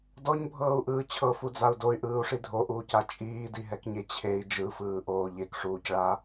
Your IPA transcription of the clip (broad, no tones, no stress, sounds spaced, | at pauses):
d ɔ ɲ bʱ ɤː u̯ ʔ ɯː t͡ɕʰ ɤ f u d͡z a u̯ d o y̯ ʔ ɯː u̯ ʂ i dʱ o ʔ uː c a t͡ʃʼ iː d i ɦ ɛ k ɲ e t͡ɕʰ e i̯ d͡ʒ ɯ f ɯː ʔ oː ʎ e k ʂ uː c ɭ a